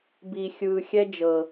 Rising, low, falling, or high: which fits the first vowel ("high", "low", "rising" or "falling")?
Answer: low